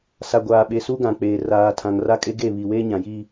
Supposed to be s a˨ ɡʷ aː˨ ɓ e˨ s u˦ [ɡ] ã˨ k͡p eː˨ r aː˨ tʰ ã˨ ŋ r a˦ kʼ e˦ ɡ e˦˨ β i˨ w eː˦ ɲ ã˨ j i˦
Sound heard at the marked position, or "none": ɡ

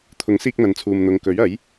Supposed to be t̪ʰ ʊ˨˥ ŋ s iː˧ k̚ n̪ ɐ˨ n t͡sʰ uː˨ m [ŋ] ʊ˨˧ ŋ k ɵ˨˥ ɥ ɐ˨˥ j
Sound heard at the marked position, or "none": n̪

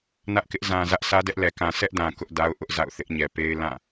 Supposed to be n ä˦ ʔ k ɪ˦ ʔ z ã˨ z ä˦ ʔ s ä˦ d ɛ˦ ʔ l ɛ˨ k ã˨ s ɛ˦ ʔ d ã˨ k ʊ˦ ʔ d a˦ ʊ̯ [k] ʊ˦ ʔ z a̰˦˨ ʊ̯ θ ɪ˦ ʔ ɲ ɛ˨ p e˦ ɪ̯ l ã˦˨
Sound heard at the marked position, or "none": ʔ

